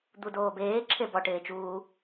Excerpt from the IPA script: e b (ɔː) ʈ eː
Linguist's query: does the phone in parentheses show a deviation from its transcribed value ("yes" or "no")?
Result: yes